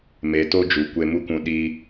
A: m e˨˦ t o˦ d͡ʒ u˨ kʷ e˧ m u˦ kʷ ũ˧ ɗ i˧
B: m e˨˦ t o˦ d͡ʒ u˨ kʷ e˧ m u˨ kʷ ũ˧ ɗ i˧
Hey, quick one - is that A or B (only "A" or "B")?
A